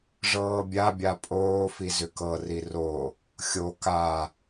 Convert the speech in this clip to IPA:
ʐ ɤː bʲ a bʲ a pʼ oː f i z ʏ k ɤ r i r o | xʲ o k a

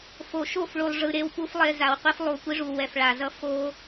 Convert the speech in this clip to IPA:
f o˨ ʃ o˦˨ f ɭ u˨ lˠ ʐ ɯ˨ ɾ e˦ w p u˦ f lˠ e˦ z a˨ w qʷ i˦ f lˠ u˨ kʷ i˦ ʐ u˨ w ɛ˨ f ɭ a˨ z ʌ˦ f o˦

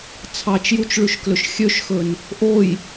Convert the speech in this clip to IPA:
t͡sʰ ɑ t͡ʃ j u t͡ʃ ɭ ʉ ʃ k l ɵ ʃ xʲ ø ʃ x ɵ n | ʔ o j

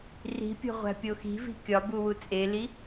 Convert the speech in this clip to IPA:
r i̤ pʲ o̤ ʁʷ æ̤ pʲ o x i̤ v i̤ kʲ ɒ b u w u t͡sʼ e l i

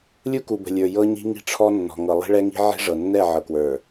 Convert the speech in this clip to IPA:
lʲ u˦ k u˨ b ə̤˨ lʲ ə˞˨ j ɤ˦ ɲ i̤˦ ŋ i̤˦ ʈ͡ʂʰ ɔ˦ nː ɔ̤˨ ŋ ɤ˨ lˠ i̤˦ ɭ ɛ˦ ŋ i̤˦ ʕ i̤˦ ʐ ɤ˨ nː ɛ˦˨ ʕ ɤ˨ k w ə˞˨

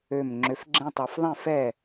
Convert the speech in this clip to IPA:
ø˧˩ m ŋ͡ǁ ø˨˦ f ɡ͡ǁ ẽ˦ tˤ a˨˦ f ðˤ ẽ˥˨ f ɛ˥˨

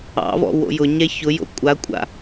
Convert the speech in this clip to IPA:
ɑ̰ v ɔ̰ w o̰ j ʊ ɲ ɛ ç ʊ j o̰ kʷʼ a kʷʼ a̰

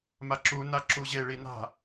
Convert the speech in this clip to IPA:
m a ǁ u n a ǁ u ʑ e ɭ i n a̤

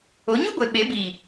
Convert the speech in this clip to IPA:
o˨˦ ɲ u˦ ɡʷ e˧ ɓ e˨˦ b iː˨

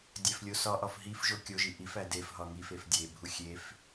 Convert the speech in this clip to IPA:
dʲ æ f lʲ o s ɒ ʔ ɒ f ɦ i f ʒ o kʲ o ʒ i ʔ i f æ d e f ɦ ɒ ŋ i f e f dʲ e bʱ u xʲ e f

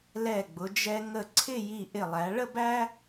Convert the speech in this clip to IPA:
l ɛ˧˩ ɡ͡b ʊ˩˧ d͡ʒ ɛ˧ ŋ ə˧˩ ǀʰ ɪ˥˧ j i˧˩ ʔ ɪ˧˩ lˠ æ˩˧ ɭ ə˥˧ b æ˥

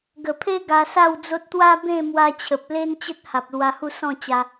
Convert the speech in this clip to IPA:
ɡ ə˨˩ pʰ e˦ ɡ a˧ s a˥˧ w d͡z o˦ t̚ t̪ w a˦ b ẽ˥˧ m w a˧ t͡ɕʰ ə˨ p̚ l e˦ n t͡ɕ ə˦ t̚ h a˨ p̚ l w a˧ h u˥˧ s ɔ̃˥˧ t͡ɕ a˧

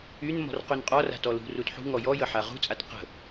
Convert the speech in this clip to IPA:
y n m ɔ̤ r q y n qʼ ɔ r a̤ t ɔ l ṳ r u t ħ ṳ ŋ ɔ j ɔ j ə ħ a ʁ ṳ t͡sʼ a t q ə̤

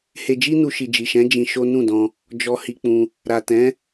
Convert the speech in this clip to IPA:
h e˧ d͡ʒ i˦ n u˧ ʃ i˨ d͡ʒ i˨ ʃ ɛ̃˨˦ d͡ʒ ĩ˧ ʃ o˦ n ũ˦˨ d ɔ̃˧ | d͡ʒ ɔ˧ h i˧ k͡p ũ˧ | ɾ a˨ t ɛ̃˨˦

